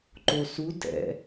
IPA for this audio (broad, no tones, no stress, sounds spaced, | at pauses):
ǃ o s u d ɛ̰